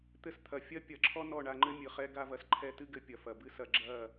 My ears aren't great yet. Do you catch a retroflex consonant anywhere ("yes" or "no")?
yes